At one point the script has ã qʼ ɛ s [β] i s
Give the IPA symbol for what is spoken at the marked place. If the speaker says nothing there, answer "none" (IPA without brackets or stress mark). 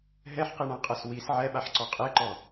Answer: w